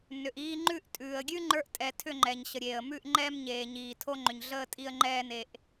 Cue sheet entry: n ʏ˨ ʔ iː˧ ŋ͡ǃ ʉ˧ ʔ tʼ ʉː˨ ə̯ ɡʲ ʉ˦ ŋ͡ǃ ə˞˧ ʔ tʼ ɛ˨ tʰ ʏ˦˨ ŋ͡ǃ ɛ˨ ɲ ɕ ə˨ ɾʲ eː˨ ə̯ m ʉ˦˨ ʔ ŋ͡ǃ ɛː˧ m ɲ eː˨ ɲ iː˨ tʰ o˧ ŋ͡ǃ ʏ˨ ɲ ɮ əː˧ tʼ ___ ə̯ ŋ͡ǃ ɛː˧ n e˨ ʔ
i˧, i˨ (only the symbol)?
i˧